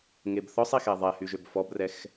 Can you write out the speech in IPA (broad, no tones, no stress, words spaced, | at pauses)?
ŋebθɔsˤ ixɛðˤɛ hyʒøbfɔbrɛx